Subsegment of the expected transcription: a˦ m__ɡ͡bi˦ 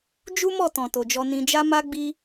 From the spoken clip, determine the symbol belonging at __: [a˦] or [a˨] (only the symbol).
a˦